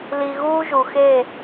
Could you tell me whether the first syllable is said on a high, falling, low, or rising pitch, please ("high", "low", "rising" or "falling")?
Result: low